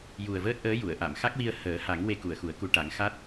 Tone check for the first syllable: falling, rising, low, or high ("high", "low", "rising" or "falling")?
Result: low